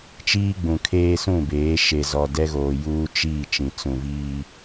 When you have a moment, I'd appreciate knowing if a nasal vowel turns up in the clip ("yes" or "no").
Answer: yes